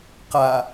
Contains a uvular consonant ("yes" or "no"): yes